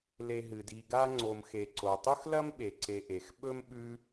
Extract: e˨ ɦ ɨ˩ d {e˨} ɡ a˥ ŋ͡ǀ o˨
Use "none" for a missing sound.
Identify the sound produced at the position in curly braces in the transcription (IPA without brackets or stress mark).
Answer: i˨